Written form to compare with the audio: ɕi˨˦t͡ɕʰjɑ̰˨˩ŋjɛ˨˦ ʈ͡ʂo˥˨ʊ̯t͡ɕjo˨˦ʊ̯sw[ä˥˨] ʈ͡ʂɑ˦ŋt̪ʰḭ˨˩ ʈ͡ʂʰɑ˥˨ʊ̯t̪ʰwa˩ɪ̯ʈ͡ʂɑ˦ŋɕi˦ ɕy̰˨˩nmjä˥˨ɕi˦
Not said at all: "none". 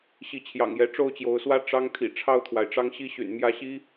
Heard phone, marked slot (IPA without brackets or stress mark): ä˦